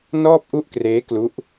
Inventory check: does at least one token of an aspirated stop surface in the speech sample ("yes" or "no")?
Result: no